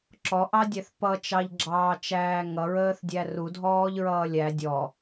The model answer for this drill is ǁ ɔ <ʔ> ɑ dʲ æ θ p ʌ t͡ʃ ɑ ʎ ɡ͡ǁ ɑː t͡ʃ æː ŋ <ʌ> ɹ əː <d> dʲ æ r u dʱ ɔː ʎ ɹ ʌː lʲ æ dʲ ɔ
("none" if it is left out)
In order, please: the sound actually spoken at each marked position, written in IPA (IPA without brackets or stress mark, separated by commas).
ʔ, ʌ, θ